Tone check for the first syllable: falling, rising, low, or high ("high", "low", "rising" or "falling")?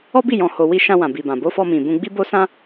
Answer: high